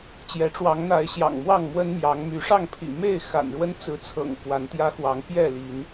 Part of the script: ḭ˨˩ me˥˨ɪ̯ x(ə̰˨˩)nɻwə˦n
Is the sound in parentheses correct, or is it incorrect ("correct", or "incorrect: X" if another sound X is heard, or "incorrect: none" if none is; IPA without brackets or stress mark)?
incorrect: a̰˨˩